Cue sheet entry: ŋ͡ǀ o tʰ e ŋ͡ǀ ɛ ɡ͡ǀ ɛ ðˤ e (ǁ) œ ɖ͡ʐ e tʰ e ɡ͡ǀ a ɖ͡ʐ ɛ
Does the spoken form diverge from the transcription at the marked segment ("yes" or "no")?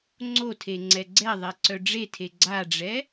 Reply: yes